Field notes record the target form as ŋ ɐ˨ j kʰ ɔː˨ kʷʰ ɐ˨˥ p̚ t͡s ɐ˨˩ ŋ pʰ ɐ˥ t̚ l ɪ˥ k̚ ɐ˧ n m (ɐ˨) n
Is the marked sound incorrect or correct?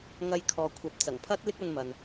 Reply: correct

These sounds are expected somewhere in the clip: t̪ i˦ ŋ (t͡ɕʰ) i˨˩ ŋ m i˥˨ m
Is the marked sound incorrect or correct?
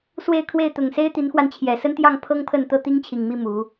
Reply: correct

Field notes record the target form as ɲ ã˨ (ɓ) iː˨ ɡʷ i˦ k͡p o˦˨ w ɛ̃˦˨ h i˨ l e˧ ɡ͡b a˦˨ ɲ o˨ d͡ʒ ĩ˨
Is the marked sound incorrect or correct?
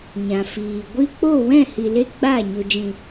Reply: incorrect: f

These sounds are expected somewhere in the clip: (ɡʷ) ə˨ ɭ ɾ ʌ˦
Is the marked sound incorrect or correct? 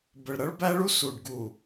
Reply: incorrect: b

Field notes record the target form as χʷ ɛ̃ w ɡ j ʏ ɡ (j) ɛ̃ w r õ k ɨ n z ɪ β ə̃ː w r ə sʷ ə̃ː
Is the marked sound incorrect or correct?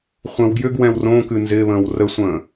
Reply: incorrect: w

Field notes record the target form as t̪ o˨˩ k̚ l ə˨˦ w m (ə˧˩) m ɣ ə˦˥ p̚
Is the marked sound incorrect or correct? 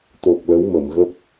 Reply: correct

